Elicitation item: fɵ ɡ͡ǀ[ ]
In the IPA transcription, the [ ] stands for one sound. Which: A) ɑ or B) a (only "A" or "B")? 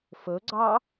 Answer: A